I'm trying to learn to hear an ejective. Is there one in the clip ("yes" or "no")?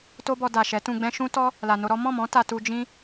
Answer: no